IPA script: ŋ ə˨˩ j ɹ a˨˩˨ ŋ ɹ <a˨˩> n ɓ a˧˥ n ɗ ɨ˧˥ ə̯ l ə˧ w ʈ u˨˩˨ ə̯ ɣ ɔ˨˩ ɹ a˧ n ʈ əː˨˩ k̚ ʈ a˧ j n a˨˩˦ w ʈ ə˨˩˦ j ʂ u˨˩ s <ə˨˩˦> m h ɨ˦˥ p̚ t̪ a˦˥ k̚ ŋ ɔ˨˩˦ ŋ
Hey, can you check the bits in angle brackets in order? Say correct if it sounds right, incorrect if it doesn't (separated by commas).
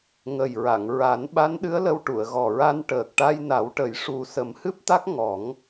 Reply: incorrect, correct